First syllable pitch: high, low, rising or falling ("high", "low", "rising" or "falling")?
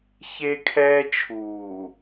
high